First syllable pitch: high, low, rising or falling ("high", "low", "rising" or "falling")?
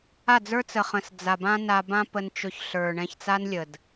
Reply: falling